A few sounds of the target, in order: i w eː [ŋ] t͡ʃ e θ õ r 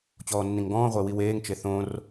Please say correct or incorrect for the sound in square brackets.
correct